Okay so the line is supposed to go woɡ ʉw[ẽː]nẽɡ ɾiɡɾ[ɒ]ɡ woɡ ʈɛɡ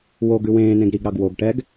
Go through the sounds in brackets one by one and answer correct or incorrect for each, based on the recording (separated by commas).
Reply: correct, incorrect